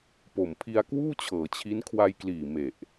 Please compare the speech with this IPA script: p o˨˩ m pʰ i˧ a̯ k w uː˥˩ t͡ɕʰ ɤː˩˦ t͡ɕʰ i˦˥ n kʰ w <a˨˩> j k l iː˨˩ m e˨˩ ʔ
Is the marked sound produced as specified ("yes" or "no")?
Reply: no